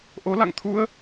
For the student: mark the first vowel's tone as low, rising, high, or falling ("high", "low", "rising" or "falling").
rising